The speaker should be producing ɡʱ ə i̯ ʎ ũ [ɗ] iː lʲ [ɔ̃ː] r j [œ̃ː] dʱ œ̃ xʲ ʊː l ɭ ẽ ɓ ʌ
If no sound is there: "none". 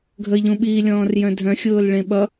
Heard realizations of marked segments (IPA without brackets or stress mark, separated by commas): ɓ, ɔ̃ː, œ̃